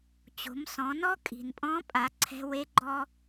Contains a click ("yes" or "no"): yes